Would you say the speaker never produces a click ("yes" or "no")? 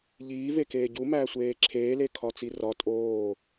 no